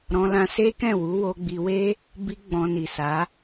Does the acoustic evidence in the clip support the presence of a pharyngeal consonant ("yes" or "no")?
no